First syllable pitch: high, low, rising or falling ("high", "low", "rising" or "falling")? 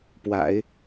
low